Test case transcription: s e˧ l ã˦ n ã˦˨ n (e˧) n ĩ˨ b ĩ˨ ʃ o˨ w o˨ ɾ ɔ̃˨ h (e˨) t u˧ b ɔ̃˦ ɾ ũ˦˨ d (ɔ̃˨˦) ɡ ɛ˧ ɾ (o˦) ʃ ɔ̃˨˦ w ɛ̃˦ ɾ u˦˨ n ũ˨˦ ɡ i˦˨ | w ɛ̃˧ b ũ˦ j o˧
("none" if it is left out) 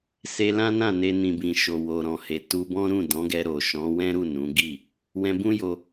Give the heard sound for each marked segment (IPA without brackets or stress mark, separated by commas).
e˧, e˨, ɔ̃˨˦, o˨